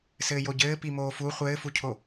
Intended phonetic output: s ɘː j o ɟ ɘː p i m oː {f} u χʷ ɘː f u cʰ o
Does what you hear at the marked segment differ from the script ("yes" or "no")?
no